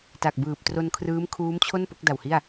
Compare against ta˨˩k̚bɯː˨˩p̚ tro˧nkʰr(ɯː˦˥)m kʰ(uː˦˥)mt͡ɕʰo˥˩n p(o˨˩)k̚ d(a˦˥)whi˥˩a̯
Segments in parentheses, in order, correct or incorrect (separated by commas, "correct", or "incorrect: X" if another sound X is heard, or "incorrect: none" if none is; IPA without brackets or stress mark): correct, correct, incorrect: o˦˥, incorrect: a˨˩